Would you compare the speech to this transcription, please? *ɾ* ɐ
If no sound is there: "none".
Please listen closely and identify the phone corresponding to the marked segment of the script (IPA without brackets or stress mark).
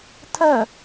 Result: tʰ